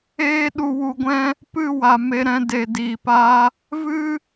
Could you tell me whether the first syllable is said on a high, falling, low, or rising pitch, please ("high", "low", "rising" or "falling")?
high